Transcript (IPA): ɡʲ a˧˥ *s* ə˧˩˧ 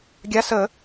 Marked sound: correct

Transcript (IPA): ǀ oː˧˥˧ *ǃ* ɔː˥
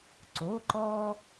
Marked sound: correct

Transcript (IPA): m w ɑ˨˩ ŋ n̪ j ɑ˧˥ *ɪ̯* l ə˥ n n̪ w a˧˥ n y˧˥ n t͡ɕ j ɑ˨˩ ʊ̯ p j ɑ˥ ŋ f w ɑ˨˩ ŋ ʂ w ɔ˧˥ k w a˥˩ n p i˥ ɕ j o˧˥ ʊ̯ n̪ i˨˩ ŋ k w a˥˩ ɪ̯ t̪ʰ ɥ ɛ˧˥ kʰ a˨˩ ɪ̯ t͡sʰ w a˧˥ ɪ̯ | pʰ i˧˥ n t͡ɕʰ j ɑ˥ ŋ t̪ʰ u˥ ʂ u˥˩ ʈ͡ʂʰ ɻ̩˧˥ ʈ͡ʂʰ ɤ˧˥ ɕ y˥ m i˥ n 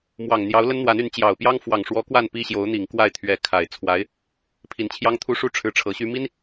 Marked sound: incorrect: ʊ̯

